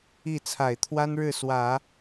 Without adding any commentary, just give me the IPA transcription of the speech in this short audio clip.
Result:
i˥˩ t͡sʰa˨˩ɪ̯t̪ʰwa˥nɻɻ̩˥˩ swä˨˩˦

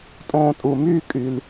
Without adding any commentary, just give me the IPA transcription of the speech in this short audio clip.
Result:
tʼõː˧tʼu˨myː˦kʼy˨l

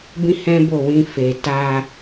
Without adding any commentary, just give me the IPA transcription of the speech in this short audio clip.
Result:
bĩ˦hɛ̃˦bo˦˨wĩ˧ fe˨ta˧

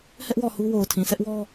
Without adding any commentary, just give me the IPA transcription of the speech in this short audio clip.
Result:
hɛ˦ʔ wɔ˦˨hu˦ wo˨ʊ̯tʰĩ˨ sʰɛ˦ʔwɔ˦

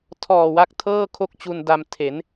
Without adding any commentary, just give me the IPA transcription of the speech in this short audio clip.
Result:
tʰɔː˨˩wa˦˥k̚tʰɤː˥˩ kʰo˥˩k̚t͡ɕu˧n da˧m tʰe˩˦n

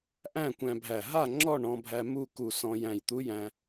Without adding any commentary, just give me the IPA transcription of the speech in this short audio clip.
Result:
ʔæ̃˥˨kʷæ̃˧bʱæ˧˩ ɦa˥˨ ŋ͡ǁɔ˥˨ɳɔ̃˧bʱæ˧ mu˥˨ ku˧˩sɔ̃˧ jæ̃˧˩jt̪u˧˥jæ̃˧

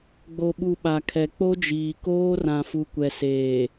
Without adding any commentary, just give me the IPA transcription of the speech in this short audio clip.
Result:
ɡ͡bo˨ɓu˨ ɓa˨kʰɛ˨ k͡po˦d͡ʒiː˨koː˦ rã˨fu˨kʷɛ˨seː˨

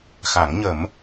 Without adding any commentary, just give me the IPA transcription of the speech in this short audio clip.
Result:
xa˨˩˦ŋɲə˨˩˦m

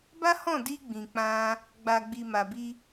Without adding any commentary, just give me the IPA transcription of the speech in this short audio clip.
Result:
ba˦hɔ̃˦˨di˧ ɡ͡bĩ˨k͡pã˧ | ɡ͡ba˨ɡ͡bi˨ ma˨bi˧

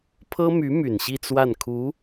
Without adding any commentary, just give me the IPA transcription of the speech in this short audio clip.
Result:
pʰɤ˥my˧˥ my˨˩nɕi˥˧t͡swa˥˩nkʰu˧˥

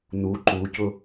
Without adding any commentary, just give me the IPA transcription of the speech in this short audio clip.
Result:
nu ǃucʊ

